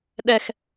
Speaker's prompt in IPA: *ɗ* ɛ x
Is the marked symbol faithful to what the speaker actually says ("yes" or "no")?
yes